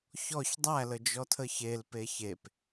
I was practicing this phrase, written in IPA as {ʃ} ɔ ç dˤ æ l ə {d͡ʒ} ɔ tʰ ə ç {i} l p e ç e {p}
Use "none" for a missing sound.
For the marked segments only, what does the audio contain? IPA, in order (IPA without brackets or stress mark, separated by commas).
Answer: ç, d͡ʒ, e, p